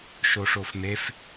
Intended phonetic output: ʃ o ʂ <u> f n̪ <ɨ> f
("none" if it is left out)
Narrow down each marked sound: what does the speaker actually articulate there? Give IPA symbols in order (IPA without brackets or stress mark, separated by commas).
o, e